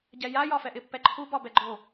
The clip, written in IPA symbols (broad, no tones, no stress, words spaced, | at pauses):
ɟɛja jɒfɛʔɪ pːɛǃʰu bɒbɛɡ͡ǃo